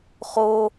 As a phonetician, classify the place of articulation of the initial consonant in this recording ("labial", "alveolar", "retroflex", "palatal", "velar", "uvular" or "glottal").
uvular